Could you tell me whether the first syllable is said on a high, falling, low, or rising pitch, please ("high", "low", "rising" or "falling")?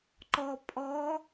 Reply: low